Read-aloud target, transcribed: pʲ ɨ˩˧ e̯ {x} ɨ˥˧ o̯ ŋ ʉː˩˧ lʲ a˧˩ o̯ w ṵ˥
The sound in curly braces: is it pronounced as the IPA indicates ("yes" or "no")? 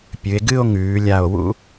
no